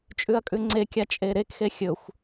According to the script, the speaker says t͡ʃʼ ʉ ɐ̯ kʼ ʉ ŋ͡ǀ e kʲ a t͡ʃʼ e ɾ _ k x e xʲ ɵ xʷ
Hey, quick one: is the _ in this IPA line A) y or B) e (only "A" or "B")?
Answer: B